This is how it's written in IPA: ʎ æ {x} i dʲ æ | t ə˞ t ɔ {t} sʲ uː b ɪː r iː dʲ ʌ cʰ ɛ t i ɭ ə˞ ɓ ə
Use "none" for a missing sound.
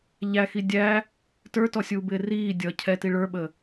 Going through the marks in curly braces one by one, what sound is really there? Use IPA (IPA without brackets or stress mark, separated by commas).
x, none